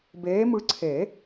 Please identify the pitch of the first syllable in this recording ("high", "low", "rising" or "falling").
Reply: rising